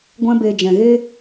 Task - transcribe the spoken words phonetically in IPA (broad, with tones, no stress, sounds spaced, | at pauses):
ɡʷ ɛ̃˦ b e˧ d͡ʒ ɛ̃˨ ɣ e˦